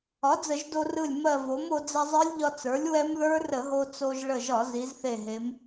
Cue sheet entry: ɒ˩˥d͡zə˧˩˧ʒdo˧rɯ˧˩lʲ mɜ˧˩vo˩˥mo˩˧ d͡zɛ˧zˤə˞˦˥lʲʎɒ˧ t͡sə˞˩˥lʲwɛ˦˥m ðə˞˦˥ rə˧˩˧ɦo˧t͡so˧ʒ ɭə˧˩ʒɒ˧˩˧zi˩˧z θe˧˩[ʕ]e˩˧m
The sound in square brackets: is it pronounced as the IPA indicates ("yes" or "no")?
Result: no